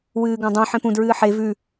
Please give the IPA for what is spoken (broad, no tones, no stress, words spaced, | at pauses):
wɨːɡãdˤõ ħẽpũ dɹɨːħe vʉ